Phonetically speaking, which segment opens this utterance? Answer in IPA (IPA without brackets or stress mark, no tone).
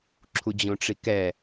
ǁʰ